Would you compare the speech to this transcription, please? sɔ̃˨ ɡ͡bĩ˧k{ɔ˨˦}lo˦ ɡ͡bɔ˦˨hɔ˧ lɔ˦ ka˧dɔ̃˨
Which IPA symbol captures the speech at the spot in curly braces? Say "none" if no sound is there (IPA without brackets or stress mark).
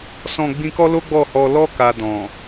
ɔ˦